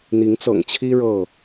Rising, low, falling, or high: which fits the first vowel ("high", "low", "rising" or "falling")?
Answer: rising